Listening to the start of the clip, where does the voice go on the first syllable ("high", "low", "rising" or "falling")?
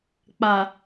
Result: low